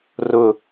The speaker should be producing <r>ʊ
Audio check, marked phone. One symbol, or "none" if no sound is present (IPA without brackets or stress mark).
r